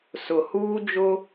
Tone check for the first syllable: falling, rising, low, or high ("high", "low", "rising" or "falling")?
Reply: low